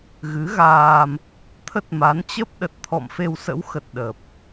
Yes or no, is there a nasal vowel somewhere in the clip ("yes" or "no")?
no